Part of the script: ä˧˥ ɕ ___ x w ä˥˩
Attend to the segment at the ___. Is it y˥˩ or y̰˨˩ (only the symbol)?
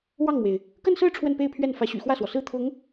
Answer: y̰˨˩